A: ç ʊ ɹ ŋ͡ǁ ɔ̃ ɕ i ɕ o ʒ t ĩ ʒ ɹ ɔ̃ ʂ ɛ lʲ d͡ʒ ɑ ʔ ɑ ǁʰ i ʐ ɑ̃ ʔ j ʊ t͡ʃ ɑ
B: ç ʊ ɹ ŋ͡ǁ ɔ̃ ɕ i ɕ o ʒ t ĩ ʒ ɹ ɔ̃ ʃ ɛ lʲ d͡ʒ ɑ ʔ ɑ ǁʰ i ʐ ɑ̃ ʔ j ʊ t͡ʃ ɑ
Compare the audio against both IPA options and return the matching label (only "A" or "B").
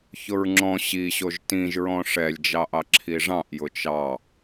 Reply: A